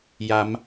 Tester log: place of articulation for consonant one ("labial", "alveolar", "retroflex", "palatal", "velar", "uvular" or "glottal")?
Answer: palatal